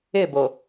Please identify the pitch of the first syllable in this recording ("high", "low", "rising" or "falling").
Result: falling